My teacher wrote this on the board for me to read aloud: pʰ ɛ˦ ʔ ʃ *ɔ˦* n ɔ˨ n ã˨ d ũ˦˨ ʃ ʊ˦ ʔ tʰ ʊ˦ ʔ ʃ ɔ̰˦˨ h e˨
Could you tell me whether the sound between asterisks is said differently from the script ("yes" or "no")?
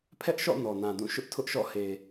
yes